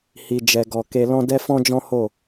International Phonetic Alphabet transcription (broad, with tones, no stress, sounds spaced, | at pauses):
h i˨ d͡ʒ ɛ˨ ɡ ɔ˨ k e˧ l ɔ̃˦ d ɛ˦ f ɔ̃˦ d͡ʒ ɔ̃˦ h o˦˨